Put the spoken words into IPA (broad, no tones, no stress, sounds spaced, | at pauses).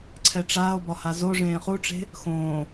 ǀʰ ɛ ʈ͡ʂ aː o̯ b ɒ h a z o ʐ ẽː χ u ʈ͡ʂ e̤ | x õː